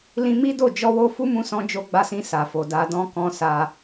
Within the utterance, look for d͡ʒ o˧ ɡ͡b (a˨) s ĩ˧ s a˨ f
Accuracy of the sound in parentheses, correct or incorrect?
incorrect